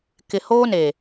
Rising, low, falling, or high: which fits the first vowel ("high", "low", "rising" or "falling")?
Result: low